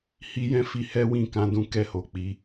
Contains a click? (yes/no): no